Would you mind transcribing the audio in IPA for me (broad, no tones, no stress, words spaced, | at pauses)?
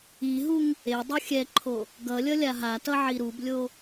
iɦuŋ | e dˤuxʲɛǃʰo | ɡʌlʲʌ lʲaɦatʌ ʕiɾublʲo